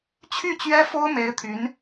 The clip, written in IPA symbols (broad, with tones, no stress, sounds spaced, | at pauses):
t͡ɕʰ y˥˩ t͡ɕ ɥ ɛ˥ f o˥ ʊ̯ m e˧˥ ɪ̯ t̪ʰ y˧˥ n